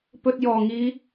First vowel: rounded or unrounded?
rounded